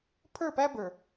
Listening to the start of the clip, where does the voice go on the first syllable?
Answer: falling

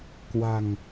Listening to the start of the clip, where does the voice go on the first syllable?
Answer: low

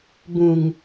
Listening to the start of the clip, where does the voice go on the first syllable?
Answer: low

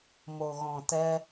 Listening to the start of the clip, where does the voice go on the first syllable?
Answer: low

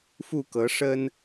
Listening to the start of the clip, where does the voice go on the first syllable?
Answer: falling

